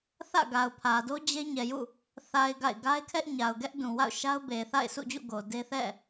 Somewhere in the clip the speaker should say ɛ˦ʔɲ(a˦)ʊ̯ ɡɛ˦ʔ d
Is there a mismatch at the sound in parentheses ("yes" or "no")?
yes